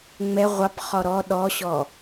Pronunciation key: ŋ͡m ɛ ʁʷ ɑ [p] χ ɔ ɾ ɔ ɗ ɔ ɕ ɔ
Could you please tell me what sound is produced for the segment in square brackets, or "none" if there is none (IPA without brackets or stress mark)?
p